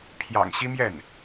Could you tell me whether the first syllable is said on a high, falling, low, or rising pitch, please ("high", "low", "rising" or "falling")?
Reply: low